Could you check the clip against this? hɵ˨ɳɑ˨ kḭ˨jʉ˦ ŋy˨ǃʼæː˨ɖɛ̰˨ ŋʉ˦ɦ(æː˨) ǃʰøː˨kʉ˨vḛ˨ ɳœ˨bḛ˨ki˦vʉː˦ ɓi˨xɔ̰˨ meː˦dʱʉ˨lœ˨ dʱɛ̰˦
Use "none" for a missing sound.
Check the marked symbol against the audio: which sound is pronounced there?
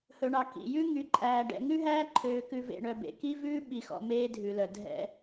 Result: æː˦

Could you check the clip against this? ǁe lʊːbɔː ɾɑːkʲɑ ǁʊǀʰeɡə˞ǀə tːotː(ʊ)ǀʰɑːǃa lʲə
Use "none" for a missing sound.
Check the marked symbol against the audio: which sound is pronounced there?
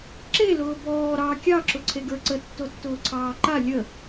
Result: ʊː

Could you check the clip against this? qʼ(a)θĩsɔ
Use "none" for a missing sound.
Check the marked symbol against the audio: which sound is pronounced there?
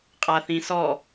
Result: a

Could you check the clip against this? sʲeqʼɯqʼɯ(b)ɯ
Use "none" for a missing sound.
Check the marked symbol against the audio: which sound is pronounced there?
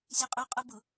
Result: b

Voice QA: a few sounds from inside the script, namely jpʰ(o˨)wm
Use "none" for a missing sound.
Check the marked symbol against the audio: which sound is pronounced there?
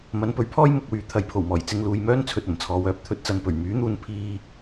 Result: o˨˩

